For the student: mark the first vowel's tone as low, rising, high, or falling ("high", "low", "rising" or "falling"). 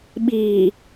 low